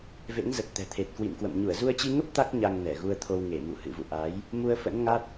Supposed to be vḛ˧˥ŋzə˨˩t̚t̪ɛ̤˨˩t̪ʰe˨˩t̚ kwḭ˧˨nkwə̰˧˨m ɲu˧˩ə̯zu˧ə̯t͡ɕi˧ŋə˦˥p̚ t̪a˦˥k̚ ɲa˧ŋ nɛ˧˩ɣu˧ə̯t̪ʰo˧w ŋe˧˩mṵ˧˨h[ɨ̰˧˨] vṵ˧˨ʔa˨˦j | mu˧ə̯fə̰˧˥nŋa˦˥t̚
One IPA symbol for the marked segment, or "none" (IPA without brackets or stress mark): ɨ̰˧˨